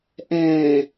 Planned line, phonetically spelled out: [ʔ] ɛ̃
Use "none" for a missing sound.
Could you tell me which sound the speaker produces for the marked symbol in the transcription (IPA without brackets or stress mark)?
ʔ